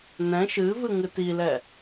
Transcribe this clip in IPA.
n ɛ̃ ʃ ɨ v ɨ ŋ ɨ t i l ɛ

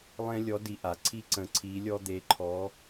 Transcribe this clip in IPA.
lˠ ẽ˥ lʲ ɔ˧˥ d i˧ ʔ a˩˧ ǀʰ i˥ ǀ ə̃˧ ǀʰ i˧˥ lʲ ɔ˥ d̪ e˧˥ ǃʰ ɔ˧˥

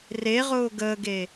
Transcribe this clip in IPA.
r e ʁ ʊː ɡ əː ɡ e

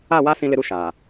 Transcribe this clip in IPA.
a˦˨ w a˦ s ĩ˦ l ɪ˦ ɾ u˦ ʃ aː˨

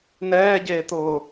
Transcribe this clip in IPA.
n ɛː ɟ eː t̪ ʊː

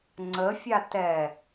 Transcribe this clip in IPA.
ŋ͡ǀ ə fʲ a t ɛ

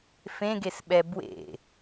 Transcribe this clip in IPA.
f ẽ ɡ e s ɓ ɛ b w ḛ

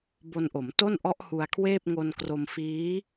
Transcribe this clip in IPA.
b o˧ n ʔ o˩˦ m t o˥˩ n ʔ ɔ˦˥ ʔ h u˧ a̯ kʰ w eː˥˩ p̚ ŋ o˧ n k r o˧ m f iː˦˥

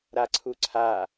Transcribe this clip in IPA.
ɾ a ǀʰ u ǀʰ a

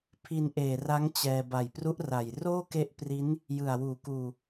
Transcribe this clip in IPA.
pʰ i˧ n ʔ eː˨˩ r a˦˥ ŋ t͡ɕ ɛː˧ b a˨˩ j p r u˦˥ ʔ r a˨˩ j r oː˥˩ k e˦˥ ʔ p r i˦˥ n | j ɯ˨˩ a̯ w uː˨˩ k uː˧

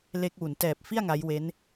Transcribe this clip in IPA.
l e˦˥ k̚ w u˩˦ n t ɛː˨˩ p̚ f i˥˩ a̯ ŋ a˦˥ j w e˦˥ n

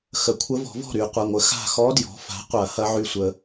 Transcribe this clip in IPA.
x ə˩˥ kʷʰ ə˧˥ v ɔ̤˨˩˦ v ɔ̤˥˩ ɾ y˨˩˦ qʷ ɐ˩˧˩ ŋʷ ə˩˥ x a̤˥˩ x ɔ˧˥ d j ɔ̤˩˥ f a̤˩˥ qʷ ɐ˨˩˦ h ɐ˧˥ ʕ y˧˩ sʷ ə˨˩˦

